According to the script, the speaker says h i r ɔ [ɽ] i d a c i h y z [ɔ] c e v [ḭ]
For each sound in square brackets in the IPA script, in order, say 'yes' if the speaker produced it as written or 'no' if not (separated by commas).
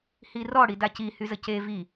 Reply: yes, no, no